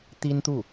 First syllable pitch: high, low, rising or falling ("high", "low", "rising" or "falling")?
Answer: high